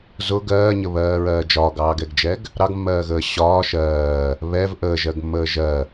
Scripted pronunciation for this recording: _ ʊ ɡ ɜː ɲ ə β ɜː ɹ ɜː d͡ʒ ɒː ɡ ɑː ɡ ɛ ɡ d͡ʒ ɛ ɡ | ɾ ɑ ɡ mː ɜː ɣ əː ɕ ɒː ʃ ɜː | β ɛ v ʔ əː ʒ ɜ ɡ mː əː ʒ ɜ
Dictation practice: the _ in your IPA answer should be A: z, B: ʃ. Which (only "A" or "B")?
A